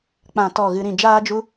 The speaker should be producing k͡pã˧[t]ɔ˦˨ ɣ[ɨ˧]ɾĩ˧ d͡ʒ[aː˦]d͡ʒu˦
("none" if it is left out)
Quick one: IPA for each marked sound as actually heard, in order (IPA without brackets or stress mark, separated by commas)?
t, ɨ˧, aː˦